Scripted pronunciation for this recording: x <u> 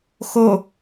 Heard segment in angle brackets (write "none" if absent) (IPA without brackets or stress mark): o